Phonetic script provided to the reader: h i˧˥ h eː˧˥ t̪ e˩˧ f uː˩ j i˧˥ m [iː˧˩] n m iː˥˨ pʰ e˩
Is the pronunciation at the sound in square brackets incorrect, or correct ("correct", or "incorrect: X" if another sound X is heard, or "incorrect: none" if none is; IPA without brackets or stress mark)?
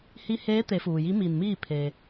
correct